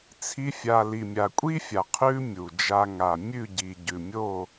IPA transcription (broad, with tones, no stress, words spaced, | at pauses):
t͡sʰi˧fʲa˨ li˨mʲa˨kʷʼi˦fʲa˨ qʰʉ˦mʲu˨ d͡ʒa˧ŋa˨ mʲʉ˦˨ ɟi˨ ɟʉ˨mʲo˦˨